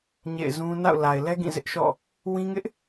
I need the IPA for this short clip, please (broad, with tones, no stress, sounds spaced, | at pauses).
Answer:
ɲ ḛ˦˨ ɪ̯ z ũ˦ n a̰˦˨ ʊ̯ l a˨ ɪ̯ l ɛ˦ ɡ ĩ˦˨ z ɪ˦ ʔ ʃ ɔ̰˦˨ | w ĩ˦ ŋ ɪ˦ ʔ